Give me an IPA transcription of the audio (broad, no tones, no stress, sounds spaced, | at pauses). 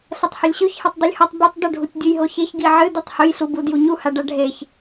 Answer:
ɬ ɐ tˤ h ɵ lʲ ɕ ʉ ç h e tˤ dˤ u lʲ h ɐ tˤ b u tˤ d ɵ ɖʱ u tʲ dʲ ɨ j ɦ o ç e ç ɡ i ʕ ɨ d u tˤ h ɵ j ɬ u b u d j u ɲ u h a ɖ a ɖʱ e ç